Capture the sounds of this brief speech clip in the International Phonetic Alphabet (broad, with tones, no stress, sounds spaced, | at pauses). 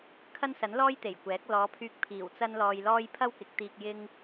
kʰ ɐ˥ n s ɐ˨˥ n l ɔː˥ j t̪ e˨˩ j kʷ ɛː˨˥ k̚ l ɔː˨˧ pʰ yː˧ k̚ pʰ iː˨˩ w t͡s ɐ˥ n l ɔː˧ j l ɔː˥ j pʰ ɐ˥ w k ɪ˨˥ k̚ t̪ iː˧ k̚ j ɪ˥ ŋ